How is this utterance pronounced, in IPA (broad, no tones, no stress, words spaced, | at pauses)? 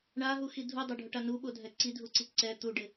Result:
ɳaɦuxi dʱudˤoɖʱʊʈa nuɓodʱɛ ǀidʱuǀi ǀɛ t̪uɖɪ